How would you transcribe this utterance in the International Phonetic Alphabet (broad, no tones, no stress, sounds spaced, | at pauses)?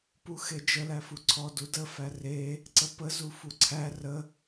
p u x e d͡ʒ ə l æ f u ǀʰ ɔ d u d ə f æ r e | ǀ ə p ə z u f u ǀʰ æ r ə